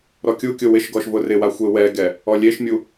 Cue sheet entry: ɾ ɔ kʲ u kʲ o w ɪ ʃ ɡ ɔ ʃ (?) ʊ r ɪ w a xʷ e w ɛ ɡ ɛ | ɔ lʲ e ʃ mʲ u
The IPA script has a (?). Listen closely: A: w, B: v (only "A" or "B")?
B